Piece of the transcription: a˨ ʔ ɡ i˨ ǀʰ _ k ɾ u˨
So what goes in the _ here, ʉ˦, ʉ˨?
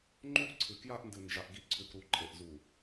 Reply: ʉ˨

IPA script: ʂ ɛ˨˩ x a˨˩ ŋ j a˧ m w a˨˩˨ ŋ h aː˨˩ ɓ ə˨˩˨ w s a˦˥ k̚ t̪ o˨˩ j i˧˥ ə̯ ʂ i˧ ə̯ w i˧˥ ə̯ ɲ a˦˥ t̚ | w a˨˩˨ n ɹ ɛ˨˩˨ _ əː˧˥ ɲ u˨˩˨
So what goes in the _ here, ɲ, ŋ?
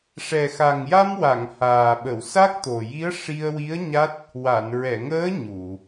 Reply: ŋ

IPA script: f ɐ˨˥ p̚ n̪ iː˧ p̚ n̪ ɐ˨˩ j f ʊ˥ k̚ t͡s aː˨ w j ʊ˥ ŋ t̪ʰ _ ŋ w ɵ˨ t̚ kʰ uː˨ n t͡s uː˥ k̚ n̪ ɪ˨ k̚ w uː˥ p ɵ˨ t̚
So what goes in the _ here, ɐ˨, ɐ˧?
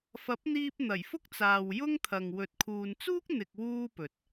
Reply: ɐ˨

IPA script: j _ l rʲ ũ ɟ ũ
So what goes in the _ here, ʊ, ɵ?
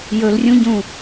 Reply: ɵ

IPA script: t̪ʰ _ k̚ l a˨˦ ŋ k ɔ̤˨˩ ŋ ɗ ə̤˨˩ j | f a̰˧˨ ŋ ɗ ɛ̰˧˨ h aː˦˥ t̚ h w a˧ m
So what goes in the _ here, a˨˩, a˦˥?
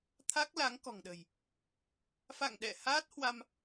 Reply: a˦˥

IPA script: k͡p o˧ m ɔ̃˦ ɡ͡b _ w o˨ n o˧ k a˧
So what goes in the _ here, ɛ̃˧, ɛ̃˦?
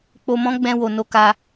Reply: ɛ̃˧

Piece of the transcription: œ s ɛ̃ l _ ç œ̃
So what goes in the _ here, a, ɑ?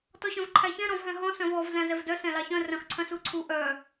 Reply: ɑ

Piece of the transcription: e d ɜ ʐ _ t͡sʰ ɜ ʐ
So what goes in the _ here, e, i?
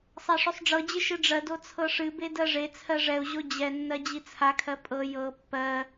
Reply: e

